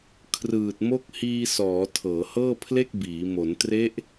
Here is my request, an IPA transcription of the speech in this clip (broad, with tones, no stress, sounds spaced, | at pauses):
kʰ r ɯː˨˩ t̚ m o˦˥ k̚ h iː˧ s ɔː˩˦ tʰ ɤː˩˦ h ɤː˥˩ pʰ l e˥˩ k̚ b iː˩˦ m o˩˦ n t r e˦˥ ʔ